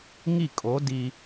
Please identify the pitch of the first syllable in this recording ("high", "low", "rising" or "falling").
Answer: falling